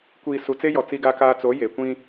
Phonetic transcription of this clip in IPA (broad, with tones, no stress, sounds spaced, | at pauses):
kʷ iː˨ s u˨ t͡s e˦ j ɔ˨ t͡s i˦ ɡ a˦ k aː˦ t͡s o˨˦ j e˨ kʷ ĩ˦